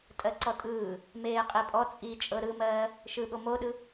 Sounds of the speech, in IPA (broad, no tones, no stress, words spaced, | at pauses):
tʼɜǀɔtʼɯː | meːqʼipʼɔ t͡sʼit͡ʃʼɤ ɾɯmɜː | ʃɯɠo moɗɯ